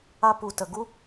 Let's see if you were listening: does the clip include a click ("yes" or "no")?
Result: no